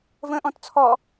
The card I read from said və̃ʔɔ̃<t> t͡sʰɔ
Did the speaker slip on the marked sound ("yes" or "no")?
no